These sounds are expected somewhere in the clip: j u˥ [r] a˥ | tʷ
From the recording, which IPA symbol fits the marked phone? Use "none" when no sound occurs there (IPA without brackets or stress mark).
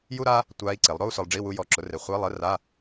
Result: ɾ